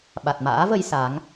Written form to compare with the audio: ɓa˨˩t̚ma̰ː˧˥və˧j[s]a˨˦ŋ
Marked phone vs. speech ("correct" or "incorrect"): correct